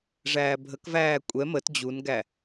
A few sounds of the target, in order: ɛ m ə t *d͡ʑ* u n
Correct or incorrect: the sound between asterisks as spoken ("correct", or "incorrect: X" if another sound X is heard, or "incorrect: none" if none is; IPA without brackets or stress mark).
correct